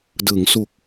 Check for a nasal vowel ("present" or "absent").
absent